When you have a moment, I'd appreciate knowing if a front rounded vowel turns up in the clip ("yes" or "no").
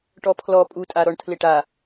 no